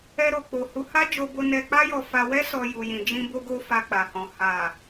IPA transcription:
ɛ˧ ɾ o˨ k͡p o˨ h u˨˦ h a˦ d͡ʒ o˧ b o˧ n ɛ˧ k͡p a˦ j ɔ˧ f a˧ w ɛ˦ s ɔ˧ j u˨ j ĩ˨ d͡ʒ ĩ˧ b o˧ ɡ o˧ f a˧ k͡p a˨ h ɔ̃˨ h a˨

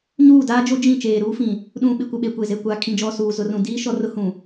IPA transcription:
ɲ uː˦˨ d aː˦ d͡ʒ o˦ d͡ʒ ĩ˦˨ t͡ʃ eː˨ ɾ uː˦ f ĩ˨ | ɗ ũ˨ ɓ ɪ˨ kʷ ɪ˨ ɓ e˨ kʷ e˨ z e˨ kʷ a˨ kʰ ĩ˨ d͡ʒ ɔ˨ s uː˨ z ʊ˨ r ũ˨ d iː˦ ʃ ɔ˦ r ʊ˦ h ũ˨

